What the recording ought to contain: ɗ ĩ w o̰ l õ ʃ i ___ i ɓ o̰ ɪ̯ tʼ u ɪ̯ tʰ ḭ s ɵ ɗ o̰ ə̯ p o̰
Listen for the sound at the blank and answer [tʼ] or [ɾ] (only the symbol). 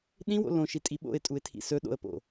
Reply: tʼ